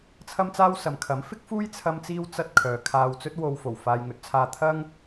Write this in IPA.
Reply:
t͡sʰ ɐ˥ m t͡s aː˥ w s ɐ˨ m kʰ ɐ˨˥ m f ɪ˥ k̚ f uː˥ j t͡sʰ ɐ˥ m t͡s iː˥ w t͡s ɐ˥ t̚ kʰ œː˨ kʰ aː˧ w t͡s ɵ˥ t̚ w o˧ w f o˨˩ w f aː˨ j ŋ ɵ˨ t̚ t͡sʰ aː˧ t̪ʰ ɐ˥ ŋ

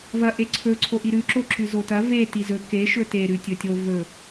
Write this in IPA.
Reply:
v ɐ ʔ e ǀʰ ɵ ǀʰ o ʔ i ɾ ʉ ǁ o ǁ ʉ z o t ɐ v e t i z ɵ k e ʃ ɵ t e ɾ ʉ tʲ ɵ tʲ o v ɵ

